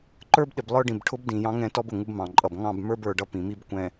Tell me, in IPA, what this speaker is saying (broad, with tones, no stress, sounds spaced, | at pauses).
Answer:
ǃ ə˞˦ b ɗ ɪ˨ b lˠ ə˞˦ ɖ ĩ˨ b ʈʰ ʊ˦ b d ĩ˨ j ɑ̃˦ ŋ ɛ̃˦ t ɔ˦ b ʊ˨ ŋ u˦ b m ɑ̃˨ ǃʼ ʌ˨ b ŋ ɑ̃˦˨ b m ə˞˦ b ə˞˨ ɖ ʌ˦ p ĩ˨ m i˦ b kʷ ɛ̃˨